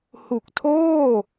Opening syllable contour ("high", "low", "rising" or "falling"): low